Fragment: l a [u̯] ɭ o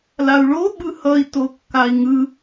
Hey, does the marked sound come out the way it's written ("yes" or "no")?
yes